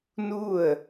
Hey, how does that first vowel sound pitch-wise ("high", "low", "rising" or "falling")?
falling